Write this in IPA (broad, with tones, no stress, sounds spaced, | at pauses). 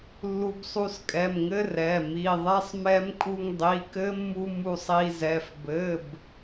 lː u˧ b sˤ u˧ s kʼ ɛ˩˧˩ m ŋ ɘ˦˥ r ɛ˩˧˩ m i˩˧˩ ðˤ ɛ˦˥ sˤ m ɛ˦˥ m kʼ u˧ ŋ dˤ i˩˧˩ k ɘ˦˥ mː u˧ m u˧ sˤ i˧ z ɛ˩˧˩ f b ɘ˩˧˩ b